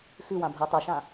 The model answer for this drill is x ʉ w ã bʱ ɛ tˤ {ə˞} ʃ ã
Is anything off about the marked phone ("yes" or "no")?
no